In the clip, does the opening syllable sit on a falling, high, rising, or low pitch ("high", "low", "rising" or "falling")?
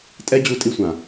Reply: high